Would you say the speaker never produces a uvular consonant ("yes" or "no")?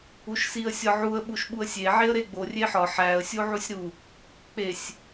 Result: yes